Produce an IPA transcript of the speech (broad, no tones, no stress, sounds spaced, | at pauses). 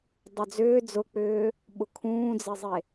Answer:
dˤ ʏ d͡z ʏː d͡z ʊ k͡p ʏː | ɓ ʊ kʰ ũː d͡z e zˤ e